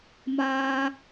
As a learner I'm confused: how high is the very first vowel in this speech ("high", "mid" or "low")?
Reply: low